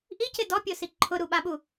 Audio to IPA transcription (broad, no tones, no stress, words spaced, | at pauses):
ʔicɪ dɔpʲosi ǃʰʊɾuɓaɓu